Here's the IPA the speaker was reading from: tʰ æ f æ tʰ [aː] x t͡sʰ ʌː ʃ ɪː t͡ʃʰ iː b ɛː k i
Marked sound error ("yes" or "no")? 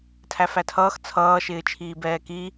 yes